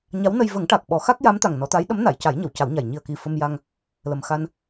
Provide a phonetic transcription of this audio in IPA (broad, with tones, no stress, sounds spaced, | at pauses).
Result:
ɲ a˧˥ w n ə˧ j v ə˨˩˦ ŋ ʈ a˨˩ k̚ ɓ ɔ˨˩˦ x a˦˥ k̚ j a˧˥ m t̪ a˨˩ ŋ n ɔ˨˩˦ t̪ a˧˥ j ɗ ə˧˥ m n a˨˩˨ j c a˨˩˦ j ɲ ə˨˩˨ w c a˨˩˦ w ɲ a˨˩ j ɲ i˨˩ ə̯ k i˨˩ f ə˧ m j a˧ ŋ | l ə˨˩ m x a˧ n